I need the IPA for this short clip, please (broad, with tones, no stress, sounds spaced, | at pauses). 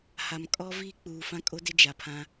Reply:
h a˨ m kʼ ɔ˦ v i˦˨ k͡p uː˨ f ã˦ kʼ o˦ d ɪ˦ d͡ʒ a˨ pʰ ã˦